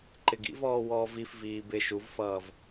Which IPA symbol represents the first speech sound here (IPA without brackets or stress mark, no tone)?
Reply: ǃ